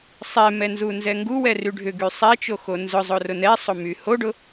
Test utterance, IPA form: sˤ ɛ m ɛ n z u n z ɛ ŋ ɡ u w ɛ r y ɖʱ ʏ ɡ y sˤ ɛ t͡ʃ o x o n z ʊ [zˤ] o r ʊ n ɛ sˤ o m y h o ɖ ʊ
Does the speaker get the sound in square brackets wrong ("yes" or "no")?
no